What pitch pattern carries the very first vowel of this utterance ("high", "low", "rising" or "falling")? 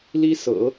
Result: high